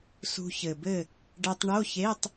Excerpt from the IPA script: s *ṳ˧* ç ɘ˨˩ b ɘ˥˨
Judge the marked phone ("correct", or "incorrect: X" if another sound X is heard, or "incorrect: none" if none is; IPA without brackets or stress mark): correct